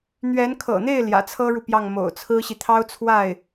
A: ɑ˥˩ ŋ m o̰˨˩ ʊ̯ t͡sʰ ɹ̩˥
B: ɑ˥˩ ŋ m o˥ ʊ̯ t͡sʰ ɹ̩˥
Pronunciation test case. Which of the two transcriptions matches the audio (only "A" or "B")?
A